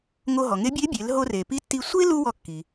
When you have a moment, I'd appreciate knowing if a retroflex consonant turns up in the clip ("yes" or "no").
no